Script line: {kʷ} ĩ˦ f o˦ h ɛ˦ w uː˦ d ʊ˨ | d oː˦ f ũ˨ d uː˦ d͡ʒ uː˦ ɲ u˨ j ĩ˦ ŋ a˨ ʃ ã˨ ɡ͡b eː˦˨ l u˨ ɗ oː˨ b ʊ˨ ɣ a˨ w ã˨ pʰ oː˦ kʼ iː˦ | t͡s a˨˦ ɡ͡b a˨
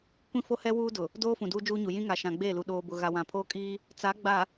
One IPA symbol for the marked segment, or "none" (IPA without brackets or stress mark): kʷ